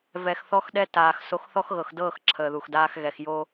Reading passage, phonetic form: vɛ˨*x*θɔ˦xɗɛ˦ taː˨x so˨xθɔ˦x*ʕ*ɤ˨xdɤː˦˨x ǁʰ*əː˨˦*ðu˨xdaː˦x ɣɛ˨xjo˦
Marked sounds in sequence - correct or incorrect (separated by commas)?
correct, incorrect, incorrect